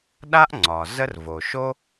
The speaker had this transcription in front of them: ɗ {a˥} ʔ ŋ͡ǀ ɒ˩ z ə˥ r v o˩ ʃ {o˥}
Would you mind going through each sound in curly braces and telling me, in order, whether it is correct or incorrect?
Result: correct, correct

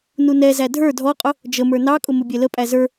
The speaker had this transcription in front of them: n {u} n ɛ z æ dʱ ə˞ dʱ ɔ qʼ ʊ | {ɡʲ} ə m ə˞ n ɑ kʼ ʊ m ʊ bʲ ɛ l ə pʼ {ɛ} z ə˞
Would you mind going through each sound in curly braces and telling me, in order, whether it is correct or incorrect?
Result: correct, incorrect: d͡ʒ, incorrect: æ

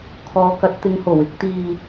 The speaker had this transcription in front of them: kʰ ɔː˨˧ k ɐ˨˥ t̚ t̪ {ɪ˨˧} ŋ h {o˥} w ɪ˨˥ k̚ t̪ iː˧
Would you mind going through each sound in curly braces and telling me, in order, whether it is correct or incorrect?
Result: correct, incorrect: o˨˩

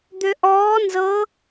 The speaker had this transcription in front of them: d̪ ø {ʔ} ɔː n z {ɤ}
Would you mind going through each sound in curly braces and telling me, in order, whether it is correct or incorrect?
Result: correct, correct

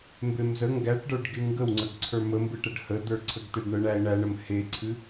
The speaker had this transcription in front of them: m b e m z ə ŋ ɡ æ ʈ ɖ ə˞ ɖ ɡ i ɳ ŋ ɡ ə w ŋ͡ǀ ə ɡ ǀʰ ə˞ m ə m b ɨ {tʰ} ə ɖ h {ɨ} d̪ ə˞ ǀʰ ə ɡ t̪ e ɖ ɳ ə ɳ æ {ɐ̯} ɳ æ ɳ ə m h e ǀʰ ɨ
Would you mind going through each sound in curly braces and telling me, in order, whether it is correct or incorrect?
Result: incorrect: ʈ, incorrect: ə, incorrect: e̯

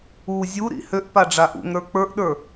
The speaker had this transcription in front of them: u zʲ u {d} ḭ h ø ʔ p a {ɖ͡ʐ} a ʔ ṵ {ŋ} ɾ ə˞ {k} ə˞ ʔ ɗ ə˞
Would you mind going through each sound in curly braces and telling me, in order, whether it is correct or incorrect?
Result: incorrect: ɾ, correct, correct, incorrect: k͡p

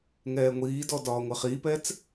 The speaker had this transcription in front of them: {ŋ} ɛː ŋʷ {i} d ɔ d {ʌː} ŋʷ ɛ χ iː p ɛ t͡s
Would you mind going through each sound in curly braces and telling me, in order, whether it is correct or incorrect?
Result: correct, incorrect: iː, incorrect: ɒː

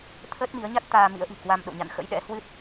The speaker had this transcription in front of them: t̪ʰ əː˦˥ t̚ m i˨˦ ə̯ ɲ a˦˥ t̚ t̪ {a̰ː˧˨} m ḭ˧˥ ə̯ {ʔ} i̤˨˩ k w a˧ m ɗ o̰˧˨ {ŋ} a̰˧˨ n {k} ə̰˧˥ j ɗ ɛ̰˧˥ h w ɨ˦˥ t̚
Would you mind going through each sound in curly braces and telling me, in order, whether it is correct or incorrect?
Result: incorrect: aː˧, correct, incorrect: ɲ, incorrect: x

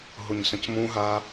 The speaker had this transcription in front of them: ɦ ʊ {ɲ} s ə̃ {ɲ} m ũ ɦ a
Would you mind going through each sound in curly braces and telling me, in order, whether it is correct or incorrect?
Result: correct, incorrect: c

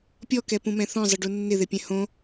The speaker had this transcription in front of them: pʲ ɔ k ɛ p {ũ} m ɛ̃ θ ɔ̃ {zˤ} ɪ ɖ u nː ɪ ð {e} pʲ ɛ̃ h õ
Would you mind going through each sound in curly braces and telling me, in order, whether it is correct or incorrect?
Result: correct, correct, correct

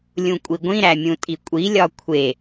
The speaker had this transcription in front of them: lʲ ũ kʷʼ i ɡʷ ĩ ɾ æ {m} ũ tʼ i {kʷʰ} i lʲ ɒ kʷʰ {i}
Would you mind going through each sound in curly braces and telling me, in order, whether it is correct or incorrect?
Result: incorrect: mʲ, incorrect: kʷʼ, incorrect: e

